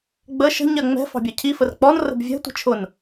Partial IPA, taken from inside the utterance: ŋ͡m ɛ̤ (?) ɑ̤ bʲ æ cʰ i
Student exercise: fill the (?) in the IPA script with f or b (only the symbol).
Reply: f